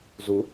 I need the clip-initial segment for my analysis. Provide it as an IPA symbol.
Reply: z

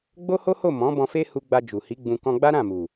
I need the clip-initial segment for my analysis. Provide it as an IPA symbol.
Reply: ɡ͡b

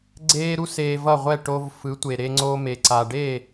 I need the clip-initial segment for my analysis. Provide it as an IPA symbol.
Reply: ɡ͡ǀ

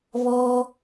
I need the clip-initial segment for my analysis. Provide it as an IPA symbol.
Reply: β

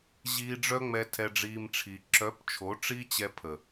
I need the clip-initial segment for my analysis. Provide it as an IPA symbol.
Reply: ʑ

